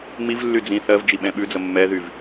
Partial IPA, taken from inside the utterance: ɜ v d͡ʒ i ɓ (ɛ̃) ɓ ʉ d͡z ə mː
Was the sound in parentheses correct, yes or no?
yes